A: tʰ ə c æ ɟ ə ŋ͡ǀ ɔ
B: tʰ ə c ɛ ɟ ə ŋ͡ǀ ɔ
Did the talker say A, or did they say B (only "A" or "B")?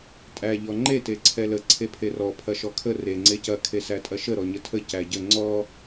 A